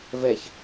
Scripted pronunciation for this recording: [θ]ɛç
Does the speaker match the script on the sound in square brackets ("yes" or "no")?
no